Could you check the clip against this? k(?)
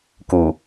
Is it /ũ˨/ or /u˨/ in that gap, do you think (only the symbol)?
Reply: u˨